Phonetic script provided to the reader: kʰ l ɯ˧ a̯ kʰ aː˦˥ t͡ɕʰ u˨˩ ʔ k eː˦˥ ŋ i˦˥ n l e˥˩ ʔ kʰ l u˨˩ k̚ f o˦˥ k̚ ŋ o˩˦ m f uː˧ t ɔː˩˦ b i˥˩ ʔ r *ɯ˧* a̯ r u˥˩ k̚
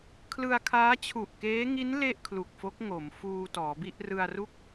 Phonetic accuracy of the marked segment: correct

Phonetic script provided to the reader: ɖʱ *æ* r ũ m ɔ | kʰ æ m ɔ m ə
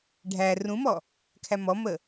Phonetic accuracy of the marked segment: correct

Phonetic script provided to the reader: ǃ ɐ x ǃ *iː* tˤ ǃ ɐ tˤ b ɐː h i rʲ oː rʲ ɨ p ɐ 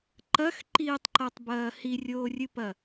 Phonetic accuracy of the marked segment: correct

